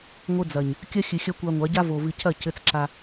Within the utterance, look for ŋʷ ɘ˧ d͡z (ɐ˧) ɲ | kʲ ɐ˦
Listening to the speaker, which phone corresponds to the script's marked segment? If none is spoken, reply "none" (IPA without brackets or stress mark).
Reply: ɐ˨